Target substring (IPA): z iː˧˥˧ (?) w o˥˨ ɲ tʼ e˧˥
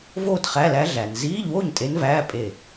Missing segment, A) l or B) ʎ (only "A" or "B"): B